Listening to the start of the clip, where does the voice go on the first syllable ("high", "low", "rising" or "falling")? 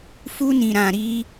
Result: high